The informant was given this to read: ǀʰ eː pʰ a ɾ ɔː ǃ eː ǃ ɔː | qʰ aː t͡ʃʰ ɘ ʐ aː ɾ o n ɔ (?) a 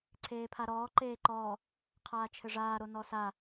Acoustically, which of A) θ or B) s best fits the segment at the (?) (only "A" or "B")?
B